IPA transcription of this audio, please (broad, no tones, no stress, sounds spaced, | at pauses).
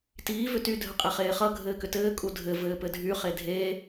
t iː v ʏ t y dʱ ə qʼ e χ eː χ ʌ ɡʱ ɘː k ʏ t ɘː kʼ u dʱ ɘ v ɘː p ɘ dʱ y χ e dʱ e